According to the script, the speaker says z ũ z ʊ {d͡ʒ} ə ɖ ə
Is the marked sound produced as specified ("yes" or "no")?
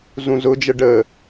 yes